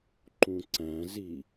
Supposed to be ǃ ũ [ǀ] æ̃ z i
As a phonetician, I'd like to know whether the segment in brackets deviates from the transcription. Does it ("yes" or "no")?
no